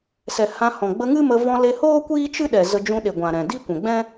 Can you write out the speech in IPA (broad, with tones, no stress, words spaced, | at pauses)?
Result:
sɛ˨hã˧ hɔ̃˨ɡ͡bə˧ ŋɨ˦mə˧ vɔ̃˧le˧hoː˦ kʷiː˦t͡ʃɨ˦ɗɛ˨ zə˧d͡ʒũ˧ɗe˨ɡʷã˨ ɾɛ̃˨ di˦kʷɛ̃˨ɡ͡bɛ̃˦